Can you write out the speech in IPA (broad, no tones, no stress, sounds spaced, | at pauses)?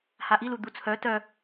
h a ʔ i l u d̪ u t͡sʰ œ t œ